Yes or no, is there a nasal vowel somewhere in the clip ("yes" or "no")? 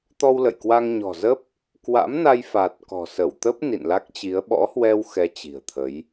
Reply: no